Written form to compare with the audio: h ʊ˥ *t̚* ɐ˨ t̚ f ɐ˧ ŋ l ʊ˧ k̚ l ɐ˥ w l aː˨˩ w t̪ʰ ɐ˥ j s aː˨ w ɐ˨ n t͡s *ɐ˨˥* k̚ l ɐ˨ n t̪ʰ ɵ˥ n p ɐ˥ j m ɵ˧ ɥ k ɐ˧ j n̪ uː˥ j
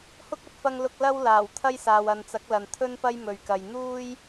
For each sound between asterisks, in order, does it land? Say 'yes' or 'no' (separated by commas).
no, yes